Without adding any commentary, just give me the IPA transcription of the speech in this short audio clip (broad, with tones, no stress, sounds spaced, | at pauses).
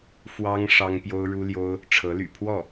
f w ɑ˥ ŋ ʂ ɑ˥ ŋ p j o˥ ʊ̯ ɻ u˥ l j o˥ ʊ̯ | ʈ͡ʂʰ ɤ˧˥ l y̰˨˩ pʰ w ɔ˥˩